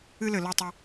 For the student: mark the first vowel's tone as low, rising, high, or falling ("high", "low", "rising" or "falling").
high